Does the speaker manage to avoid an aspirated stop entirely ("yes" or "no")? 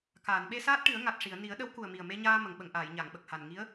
yes